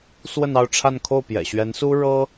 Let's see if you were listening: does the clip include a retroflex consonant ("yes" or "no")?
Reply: yes